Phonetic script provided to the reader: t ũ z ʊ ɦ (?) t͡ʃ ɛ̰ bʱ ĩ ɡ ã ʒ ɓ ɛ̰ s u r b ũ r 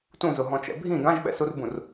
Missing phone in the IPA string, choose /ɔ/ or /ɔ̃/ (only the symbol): ɔ̃